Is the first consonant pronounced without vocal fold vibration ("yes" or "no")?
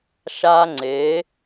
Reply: yes